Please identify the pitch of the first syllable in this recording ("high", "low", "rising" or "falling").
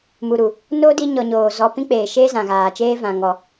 low